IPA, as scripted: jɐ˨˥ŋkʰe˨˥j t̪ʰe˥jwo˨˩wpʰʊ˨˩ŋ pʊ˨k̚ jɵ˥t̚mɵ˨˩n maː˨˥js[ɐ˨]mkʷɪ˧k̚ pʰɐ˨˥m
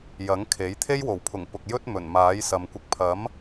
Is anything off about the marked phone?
no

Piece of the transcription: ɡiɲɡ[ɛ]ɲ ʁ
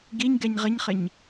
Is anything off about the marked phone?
no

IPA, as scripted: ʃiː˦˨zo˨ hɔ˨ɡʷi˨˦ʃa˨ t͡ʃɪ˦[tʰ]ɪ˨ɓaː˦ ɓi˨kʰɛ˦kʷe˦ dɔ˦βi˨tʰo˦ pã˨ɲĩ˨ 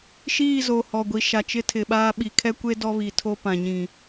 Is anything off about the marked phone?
no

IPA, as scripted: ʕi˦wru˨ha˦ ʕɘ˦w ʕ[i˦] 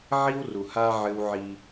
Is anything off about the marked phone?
no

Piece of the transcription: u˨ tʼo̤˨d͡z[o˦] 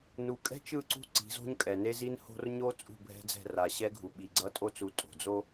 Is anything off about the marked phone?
no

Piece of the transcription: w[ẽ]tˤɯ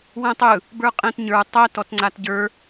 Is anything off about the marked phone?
yes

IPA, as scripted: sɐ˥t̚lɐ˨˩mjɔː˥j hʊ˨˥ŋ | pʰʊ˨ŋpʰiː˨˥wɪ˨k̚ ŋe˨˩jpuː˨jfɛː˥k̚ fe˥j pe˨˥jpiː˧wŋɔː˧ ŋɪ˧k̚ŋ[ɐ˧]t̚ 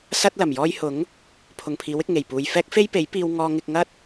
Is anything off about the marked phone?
yes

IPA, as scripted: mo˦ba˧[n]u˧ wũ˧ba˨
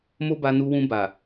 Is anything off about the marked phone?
no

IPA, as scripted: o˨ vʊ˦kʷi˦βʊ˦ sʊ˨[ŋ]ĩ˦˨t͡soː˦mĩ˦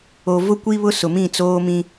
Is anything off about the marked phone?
yes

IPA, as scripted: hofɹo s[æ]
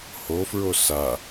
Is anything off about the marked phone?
yes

